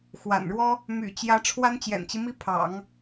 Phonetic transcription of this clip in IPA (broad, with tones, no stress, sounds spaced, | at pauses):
x w a̰˨˩ n ɻ w ɔ˥ | m y̰˨˩ t͡ɕ j ä˧˥ ʈ͡ʂʰ w a˥ n t͡ɕ j ɛ̰˨˩ n t͡ɕ i˦ m i˥ pʰ ɑ̰˨˩˦ ŋ